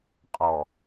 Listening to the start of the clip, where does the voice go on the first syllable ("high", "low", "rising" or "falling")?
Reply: low